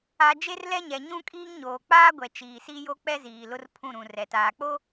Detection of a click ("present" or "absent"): absent